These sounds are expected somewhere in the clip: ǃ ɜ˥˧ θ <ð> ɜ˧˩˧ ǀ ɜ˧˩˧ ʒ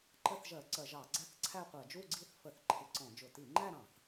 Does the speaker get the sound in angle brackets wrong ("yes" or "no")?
yes